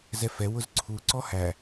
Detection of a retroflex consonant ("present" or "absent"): absent